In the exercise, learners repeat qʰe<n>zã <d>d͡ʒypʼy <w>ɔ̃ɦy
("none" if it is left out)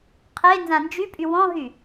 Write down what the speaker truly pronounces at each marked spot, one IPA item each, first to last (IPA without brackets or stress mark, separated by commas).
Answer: n, n, w